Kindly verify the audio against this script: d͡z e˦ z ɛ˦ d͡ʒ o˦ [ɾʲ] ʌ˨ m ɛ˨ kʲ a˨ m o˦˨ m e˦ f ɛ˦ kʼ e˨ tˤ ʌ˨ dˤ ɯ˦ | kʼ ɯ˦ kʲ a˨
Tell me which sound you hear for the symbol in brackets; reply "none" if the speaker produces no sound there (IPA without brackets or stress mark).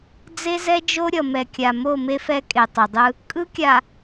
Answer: ɾʲ